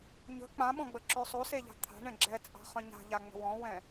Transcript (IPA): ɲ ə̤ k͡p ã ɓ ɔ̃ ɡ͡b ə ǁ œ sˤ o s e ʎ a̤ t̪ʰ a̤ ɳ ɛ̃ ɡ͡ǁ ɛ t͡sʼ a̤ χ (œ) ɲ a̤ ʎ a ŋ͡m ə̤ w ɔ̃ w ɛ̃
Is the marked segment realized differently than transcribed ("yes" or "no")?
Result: yes